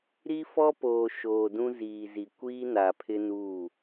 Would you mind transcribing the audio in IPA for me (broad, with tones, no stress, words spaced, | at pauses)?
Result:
ɾi˦fɔ˦poː˨ ʃoː˨ dũ˦ziː˨zi˨ kʷiː˦na˨pʰɪ˦ nuː˦˨